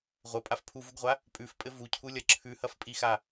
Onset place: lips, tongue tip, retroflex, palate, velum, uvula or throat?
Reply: uvula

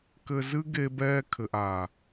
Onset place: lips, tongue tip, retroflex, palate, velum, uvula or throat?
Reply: velum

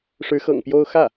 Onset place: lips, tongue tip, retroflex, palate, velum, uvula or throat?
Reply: retroflex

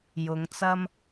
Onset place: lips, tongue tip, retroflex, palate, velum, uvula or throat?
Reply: palate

